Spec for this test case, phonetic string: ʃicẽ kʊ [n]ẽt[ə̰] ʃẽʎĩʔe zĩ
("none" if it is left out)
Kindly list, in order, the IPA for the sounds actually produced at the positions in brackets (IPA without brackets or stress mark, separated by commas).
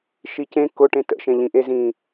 ʈ, ə̰